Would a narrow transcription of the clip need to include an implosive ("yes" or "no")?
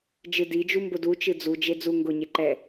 no